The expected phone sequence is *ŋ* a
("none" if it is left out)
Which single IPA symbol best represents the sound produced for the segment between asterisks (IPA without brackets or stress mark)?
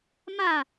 m